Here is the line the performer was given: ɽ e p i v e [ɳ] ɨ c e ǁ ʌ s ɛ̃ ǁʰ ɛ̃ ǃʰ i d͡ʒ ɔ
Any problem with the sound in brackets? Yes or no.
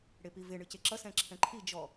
no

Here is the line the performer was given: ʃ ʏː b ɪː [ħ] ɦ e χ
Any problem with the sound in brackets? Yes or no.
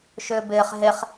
yes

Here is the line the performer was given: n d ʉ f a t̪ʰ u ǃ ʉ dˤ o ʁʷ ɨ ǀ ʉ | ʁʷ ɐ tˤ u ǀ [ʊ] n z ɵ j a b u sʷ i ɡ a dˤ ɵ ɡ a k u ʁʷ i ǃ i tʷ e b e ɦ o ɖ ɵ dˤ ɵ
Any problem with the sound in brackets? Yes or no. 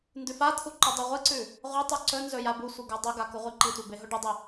yes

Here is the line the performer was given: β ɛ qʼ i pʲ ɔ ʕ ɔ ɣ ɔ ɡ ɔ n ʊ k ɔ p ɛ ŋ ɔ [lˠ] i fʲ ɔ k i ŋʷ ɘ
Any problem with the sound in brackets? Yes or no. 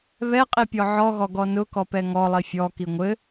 no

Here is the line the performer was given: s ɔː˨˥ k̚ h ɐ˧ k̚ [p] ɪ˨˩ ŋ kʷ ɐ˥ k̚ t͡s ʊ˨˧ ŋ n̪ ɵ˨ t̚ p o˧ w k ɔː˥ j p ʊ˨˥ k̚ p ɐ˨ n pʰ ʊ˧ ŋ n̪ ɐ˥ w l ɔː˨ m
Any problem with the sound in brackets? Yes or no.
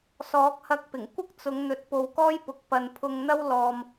no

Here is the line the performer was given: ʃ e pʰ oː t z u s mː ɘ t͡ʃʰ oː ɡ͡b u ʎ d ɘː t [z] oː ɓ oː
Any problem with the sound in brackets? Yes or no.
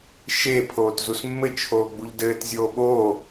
yes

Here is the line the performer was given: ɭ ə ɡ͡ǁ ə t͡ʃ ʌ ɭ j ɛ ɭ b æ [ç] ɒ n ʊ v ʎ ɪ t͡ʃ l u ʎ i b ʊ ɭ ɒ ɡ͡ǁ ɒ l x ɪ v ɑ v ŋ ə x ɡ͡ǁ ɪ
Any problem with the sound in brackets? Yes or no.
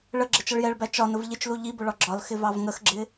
yes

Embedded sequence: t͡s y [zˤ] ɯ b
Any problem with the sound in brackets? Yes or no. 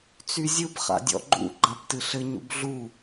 yes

